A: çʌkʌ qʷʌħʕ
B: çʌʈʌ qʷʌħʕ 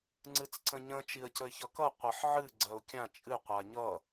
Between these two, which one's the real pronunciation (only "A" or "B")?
A